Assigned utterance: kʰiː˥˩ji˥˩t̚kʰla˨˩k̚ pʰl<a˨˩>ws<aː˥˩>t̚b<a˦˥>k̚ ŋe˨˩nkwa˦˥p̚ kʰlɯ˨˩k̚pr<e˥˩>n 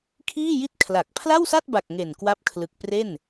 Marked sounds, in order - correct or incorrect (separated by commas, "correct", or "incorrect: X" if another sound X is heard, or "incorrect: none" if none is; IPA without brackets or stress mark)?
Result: incorrect: a˥˩, incorrect: a˥˩, incorrect: a˨˩, correct